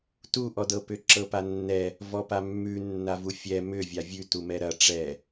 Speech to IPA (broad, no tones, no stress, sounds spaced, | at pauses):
t u ʔ ɔ d ɤ p ʏ ǁ ɤ p a nː ɛ | v ɔ p a mː ʉ nː a v u fʲ ɛ m ʏ vʲ a vʲ ʉ t u m ɛ ɾ ɐ ʈ͡ʂ ɛ